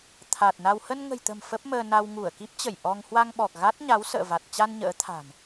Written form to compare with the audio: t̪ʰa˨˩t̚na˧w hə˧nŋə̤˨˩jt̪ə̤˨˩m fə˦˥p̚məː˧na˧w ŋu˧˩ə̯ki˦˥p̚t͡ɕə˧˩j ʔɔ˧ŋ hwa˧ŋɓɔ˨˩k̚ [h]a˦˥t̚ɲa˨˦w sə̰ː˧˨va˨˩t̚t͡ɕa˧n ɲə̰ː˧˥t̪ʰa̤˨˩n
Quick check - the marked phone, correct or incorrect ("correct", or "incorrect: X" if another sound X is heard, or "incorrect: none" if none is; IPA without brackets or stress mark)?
incorrect: ɣ